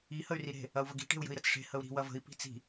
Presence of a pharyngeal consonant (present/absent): absent